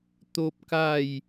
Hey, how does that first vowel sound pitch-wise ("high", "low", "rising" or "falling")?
high